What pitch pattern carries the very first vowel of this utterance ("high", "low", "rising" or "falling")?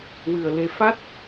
low